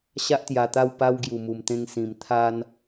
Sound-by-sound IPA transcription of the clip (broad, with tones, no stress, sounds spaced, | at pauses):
ɕ a˦ ʔ t̪ j a˨˩ t̪ a˥˧ w p a˦ w ɡ j u˨˩ m u˨˩ m t̪ ẽ˧ ŋ s ĩ˨˩ m t̪ʰ a˦ n